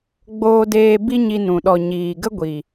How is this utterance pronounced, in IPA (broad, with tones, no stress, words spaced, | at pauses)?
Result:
ɡ͡boː˧deː˧ bi˦ɲi˧ nũ˨ ɗɔ˨ ɲiː˨ɡə˦ɡʷi˨